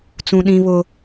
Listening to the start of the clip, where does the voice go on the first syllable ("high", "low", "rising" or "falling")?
high